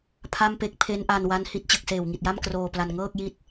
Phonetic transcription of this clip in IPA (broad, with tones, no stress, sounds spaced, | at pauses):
pʰ a˥˩ m p e˥˩ k̚ pʰ e˦˥ n ʔ a˧ n w a˦˥ n h i˦˥ t̚ t͡ɕ ɯ˨˩ k̚ s eː˨˩ w ŋ i˨˩ t̚ j a˥˩ m k r oː˧ p l a˧ n ŋ ɤː˥˩ k̚ j i˦˥ t̚